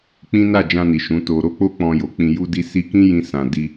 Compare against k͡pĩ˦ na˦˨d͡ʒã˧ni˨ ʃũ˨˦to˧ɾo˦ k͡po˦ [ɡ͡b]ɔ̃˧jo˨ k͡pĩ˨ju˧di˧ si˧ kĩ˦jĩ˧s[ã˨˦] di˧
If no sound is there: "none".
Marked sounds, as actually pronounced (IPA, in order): k͡p, ã˨

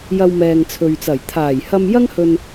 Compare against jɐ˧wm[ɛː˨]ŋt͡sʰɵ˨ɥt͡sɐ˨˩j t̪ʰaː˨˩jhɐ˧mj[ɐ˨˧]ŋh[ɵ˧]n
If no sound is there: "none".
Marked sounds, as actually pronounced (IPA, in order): ɛː˨, ɐ˥, ɵ˧

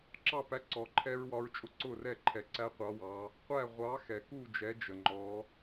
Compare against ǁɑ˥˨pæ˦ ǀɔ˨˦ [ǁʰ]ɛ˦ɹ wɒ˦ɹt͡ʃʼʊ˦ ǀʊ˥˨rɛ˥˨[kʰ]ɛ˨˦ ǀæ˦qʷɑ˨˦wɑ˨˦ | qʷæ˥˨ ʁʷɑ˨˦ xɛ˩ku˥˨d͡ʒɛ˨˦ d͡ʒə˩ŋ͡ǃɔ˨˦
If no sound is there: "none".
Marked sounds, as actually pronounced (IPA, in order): ǃʰ, ǃʰ

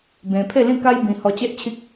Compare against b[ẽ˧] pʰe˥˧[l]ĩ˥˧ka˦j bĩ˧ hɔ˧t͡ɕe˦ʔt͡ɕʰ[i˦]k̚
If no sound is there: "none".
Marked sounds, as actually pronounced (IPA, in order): ẽ˧, l, i˦

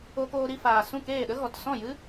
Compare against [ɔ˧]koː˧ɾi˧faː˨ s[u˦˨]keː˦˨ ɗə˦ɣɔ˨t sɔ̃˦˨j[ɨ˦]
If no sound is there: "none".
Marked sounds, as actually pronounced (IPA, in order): o˧, ũ˦˨, ɨ˦

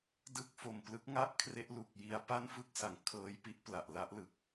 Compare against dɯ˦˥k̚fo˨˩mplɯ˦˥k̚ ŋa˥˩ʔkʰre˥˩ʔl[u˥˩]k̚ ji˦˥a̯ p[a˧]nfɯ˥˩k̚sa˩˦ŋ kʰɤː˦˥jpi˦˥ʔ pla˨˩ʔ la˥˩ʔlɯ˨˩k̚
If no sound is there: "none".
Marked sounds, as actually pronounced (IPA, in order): u˨˩, a˥˩

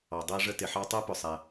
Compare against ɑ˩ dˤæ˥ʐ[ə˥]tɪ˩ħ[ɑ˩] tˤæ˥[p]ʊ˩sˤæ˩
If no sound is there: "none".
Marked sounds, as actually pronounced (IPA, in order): ə˥, ɑ˥, p

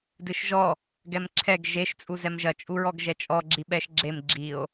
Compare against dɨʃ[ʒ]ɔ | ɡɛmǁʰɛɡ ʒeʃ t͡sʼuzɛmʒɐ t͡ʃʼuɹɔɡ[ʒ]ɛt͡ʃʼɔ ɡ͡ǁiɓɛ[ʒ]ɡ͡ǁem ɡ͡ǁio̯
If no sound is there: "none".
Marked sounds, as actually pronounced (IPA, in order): ʒ, ʒ, ʃ

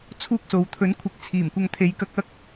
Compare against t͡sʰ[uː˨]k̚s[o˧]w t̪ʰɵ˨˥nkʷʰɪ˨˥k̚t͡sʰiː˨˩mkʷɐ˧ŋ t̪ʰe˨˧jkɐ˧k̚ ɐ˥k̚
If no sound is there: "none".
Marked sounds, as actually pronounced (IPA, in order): uː˥, o˨

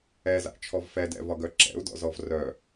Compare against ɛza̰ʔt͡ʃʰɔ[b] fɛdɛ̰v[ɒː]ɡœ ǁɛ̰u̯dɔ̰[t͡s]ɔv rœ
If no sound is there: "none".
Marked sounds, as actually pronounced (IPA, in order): v, ɒ, z

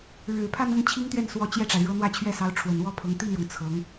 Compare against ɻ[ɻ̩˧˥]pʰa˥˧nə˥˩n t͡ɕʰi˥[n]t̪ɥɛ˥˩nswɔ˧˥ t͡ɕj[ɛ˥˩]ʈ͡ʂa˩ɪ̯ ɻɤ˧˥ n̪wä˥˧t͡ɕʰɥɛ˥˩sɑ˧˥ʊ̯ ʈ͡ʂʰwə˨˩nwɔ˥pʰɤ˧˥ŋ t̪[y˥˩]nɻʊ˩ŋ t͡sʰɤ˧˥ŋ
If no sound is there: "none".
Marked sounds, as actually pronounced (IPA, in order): ɻ̩˨˩, ŋ, ɛ˥˩, i˥˩

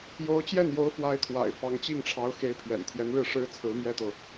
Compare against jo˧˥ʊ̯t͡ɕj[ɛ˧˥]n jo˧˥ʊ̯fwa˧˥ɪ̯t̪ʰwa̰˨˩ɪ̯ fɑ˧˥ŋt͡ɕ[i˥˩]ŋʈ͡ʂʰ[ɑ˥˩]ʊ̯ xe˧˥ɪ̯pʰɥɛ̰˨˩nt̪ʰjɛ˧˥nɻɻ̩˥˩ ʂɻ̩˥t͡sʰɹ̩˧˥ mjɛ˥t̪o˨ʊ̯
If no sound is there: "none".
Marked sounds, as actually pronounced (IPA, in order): ɛ˥˩, i˥˩, ɑ˧˥

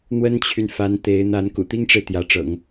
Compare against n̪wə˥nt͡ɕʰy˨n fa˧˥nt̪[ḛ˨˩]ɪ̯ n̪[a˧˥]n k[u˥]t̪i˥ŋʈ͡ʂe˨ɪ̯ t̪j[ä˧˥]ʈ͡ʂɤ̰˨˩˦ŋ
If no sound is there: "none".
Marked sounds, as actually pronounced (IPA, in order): e˧˥, a˧˥, ṵ˨˩, ä˧˥

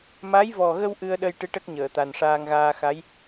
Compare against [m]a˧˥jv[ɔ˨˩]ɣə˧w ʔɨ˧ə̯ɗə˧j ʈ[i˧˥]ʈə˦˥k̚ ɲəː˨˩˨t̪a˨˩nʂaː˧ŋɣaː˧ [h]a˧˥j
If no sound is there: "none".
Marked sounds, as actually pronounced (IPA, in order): m, ɔ˨˩, ɨ˧˥, x

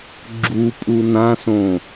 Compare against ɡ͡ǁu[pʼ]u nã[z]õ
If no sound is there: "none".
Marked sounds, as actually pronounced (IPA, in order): pʼ, s

